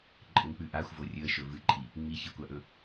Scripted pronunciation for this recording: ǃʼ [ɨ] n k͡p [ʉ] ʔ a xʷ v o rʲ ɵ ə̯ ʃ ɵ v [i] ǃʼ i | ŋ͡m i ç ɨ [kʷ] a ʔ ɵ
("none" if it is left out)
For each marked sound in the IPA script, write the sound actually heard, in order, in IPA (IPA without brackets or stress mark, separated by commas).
ɨ, ʉ, ɨ, kʷ